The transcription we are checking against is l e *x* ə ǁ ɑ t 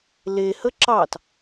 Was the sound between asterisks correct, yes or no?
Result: no